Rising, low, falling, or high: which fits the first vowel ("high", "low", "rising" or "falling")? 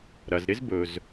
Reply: low